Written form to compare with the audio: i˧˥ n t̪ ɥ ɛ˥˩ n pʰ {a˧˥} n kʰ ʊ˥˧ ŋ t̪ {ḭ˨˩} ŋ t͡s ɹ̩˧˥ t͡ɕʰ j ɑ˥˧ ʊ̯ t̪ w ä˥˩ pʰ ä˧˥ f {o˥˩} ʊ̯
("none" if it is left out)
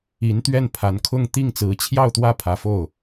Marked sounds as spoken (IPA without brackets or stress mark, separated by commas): a˧˥, i˥˩, o˥˩